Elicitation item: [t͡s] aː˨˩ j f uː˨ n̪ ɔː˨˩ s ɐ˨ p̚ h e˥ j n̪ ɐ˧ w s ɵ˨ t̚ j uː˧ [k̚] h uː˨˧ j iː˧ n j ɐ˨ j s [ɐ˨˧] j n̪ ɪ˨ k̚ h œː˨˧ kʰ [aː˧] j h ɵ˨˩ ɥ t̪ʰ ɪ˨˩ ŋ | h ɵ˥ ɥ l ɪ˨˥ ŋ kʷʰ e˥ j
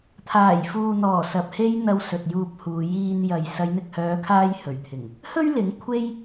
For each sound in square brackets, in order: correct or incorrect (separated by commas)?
incorrect, incorrect, correct, correct